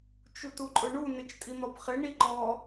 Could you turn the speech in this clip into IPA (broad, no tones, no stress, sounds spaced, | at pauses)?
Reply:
t͡ʃ u t u ǃʼ ʊ ɳ u n ɪ t͡ʃ tʼ i n̪ ɔ p χ ɪ ɳ i ǃ ɔ